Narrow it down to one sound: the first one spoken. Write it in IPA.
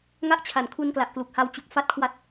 ŋ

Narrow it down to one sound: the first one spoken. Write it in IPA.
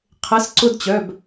qʰ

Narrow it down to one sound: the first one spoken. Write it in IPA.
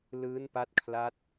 l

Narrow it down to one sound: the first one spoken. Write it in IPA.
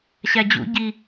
ɕ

